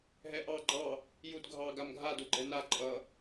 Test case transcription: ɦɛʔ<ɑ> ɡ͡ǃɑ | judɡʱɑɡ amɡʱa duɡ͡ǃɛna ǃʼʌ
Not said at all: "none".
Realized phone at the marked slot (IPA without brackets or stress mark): ɑ